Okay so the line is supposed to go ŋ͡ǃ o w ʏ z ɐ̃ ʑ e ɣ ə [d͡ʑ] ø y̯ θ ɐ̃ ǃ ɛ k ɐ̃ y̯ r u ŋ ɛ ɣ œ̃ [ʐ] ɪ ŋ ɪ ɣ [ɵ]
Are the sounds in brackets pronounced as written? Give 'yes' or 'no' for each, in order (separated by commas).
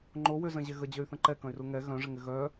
yes, yes, no